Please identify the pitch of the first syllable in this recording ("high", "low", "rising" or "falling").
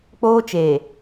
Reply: high